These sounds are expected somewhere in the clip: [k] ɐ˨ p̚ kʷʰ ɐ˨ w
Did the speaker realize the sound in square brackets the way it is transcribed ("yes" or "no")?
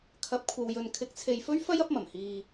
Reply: no